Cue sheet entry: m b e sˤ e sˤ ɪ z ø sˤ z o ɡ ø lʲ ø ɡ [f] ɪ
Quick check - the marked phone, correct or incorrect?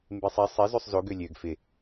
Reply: correct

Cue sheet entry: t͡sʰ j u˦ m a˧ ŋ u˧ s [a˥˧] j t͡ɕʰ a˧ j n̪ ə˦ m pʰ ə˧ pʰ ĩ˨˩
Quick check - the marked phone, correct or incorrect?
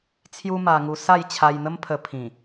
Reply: correct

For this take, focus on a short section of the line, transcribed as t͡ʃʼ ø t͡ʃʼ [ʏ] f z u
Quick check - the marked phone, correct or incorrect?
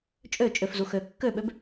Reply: correct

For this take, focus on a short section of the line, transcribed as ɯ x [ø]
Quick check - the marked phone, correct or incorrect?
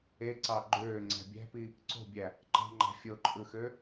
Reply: correct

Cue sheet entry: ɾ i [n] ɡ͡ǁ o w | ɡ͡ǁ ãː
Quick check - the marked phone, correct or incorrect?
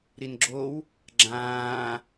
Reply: correct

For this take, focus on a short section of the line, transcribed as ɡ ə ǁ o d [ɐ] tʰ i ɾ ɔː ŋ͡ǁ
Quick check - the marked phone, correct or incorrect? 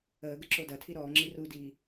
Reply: correct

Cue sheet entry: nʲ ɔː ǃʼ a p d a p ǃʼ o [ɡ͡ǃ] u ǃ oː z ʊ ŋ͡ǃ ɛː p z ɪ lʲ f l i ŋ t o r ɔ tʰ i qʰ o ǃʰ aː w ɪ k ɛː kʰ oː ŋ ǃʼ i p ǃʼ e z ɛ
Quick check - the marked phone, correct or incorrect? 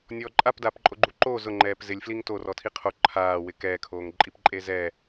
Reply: correct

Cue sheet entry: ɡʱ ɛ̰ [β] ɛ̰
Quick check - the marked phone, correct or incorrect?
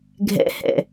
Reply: incorrect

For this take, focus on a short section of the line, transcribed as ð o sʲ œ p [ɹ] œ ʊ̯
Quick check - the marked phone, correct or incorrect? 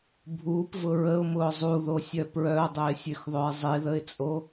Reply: correct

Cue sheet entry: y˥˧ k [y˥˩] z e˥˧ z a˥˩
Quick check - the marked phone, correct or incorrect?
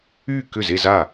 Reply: incorrect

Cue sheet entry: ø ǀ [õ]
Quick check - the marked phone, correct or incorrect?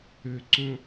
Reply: correct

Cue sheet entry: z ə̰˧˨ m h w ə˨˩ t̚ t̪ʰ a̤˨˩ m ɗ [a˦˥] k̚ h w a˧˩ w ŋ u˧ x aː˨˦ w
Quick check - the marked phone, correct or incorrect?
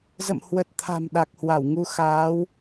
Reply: incorrect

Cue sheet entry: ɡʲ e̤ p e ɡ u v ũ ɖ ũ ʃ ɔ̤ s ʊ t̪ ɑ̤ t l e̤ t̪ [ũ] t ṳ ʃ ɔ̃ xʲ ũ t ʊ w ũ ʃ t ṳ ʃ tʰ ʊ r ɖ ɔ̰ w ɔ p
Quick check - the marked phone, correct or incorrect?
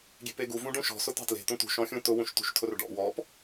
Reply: correct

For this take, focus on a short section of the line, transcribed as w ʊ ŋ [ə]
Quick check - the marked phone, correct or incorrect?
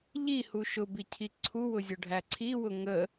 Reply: correct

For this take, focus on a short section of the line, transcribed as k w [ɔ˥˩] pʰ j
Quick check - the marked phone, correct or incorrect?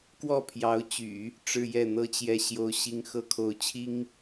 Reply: correct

